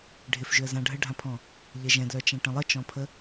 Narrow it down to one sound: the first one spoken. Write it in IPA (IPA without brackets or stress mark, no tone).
ɖʱ